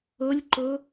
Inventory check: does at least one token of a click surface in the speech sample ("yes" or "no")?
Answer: yes